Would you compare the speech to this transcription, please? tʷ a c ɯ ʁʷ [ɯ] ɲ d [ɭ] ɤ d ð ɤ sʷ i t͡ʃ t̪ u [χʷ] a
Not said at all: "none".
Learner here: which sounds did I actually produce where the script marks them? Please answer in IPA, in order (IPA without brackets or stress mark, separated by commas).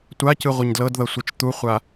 ɯ, l, χʷ